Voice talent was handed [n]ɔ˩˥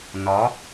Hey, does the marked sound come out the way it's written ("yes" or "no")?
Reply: yes